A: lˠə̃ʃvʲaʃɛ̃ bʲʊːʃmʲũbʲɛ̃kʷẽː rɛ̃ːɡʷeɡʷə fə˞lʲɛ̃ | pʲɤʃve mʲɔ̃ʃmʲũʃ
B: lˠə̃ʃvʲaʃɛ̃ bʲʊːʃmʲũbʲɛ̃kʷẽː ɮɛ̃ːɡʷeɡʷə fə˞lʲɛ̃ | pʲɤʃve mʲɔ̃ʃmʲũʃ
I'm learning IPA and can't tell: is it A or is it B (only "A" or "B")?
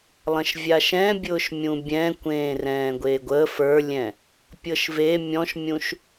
A